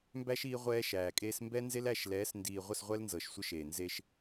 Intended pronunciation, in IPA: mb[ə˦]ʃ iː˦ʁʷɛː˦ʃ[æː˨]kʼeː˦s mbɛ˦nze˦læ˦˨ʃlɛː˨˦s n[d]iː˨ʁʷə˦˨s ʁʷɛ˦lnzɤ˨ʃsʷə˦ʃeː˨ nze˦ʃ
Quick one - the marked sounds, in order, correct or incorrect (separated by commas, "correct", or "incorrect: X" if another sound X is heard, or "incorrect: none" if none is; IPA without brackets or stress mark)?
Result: incorrect: æ˦, correct, correct